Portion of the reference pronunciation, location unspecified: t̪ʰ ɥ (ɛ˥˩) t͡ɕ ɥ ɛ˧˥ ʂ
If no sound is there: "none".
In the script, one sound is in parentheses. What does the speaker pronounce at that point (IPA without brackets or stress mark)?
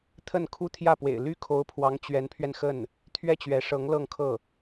ɛ˥˩